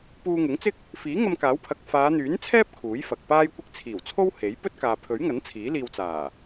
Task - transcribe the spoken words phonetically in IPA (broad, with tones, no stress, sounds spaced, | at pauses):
p uː˧ ŋ ʊ˨˥ ŋ t͡s ɪ˥ k̚ | f iː˨˥ ŋ ɐ˧ m k aː˨˥ w pʰ ɐ˨ k̚ f aː˨˧ n̪ yː˨˥ n t͡sʰ ɛː˥ p̚ kʰ uː˨˥ j f ɐ˨ k̚ p aː˥ j kʷ ɪ˥ k̚ t͡sʰ iː˨˩ w t͡sʰ o˥ w h e˨˥ j p ɵ˥ t̚ k aː˨ pʰ ɵ˨˥ ɥ ŋ ɐ˨˥ n t͡sʰ iː˨˥ l iː˧ w t͡s aː˨˩